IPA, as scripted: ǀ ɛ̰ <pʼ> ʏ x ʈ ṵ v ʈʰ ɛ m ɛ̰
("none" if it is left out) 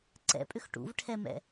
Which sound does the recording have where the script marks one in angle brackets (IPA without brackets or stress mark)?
pʼ